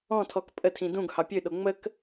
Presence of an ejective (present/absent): present